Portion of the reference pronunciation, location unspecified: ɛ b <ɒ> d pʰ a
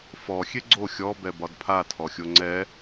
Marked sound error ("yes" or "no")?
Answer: no